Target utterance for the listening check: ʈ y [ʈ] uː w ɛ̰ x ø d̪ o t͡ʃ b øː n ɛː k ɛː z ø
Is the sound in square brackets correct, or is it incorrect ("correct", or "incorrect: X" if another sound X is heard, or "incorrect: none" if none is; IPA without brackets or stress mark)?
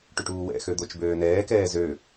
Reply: correct